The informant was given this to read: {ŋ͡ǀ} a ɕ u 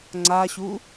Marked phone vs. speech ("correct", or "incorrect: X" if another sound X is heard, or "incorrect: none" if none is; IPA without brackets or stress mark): correct